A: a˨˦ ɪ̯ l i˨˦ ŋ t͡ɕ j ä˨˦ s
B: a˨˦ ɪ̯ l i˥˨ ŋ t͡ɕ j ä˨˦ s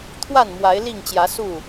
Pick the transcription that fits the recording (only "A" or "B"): B